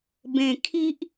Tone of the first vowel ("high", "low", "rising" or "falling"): low